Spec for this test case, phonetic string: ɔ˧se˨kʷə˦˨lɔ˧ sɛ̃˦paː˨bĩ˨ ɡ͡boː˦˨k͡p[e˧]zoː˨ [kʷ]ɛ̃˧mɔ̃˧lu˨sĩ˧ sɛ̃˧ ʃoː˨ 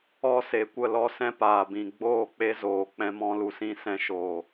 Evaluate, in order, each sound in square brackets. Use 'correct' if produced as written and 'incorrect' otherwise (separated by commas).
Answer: correct, incorrect